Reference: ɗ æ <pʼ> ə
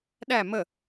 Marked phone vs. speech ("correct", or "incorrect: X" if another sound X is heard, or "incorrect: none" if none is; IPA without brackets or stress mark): incorrect: m